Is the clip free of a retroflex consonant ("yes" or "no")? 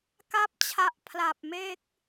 yes